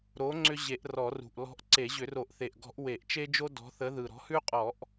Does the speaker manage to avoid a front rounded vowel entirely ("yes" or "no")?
no